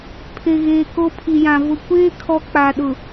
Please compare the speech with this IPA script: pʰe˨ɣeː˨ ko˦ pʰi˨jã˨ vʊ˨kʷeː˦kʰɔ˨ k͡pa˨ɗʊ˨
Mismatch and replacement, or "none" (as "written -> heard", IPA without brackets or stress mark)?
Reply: none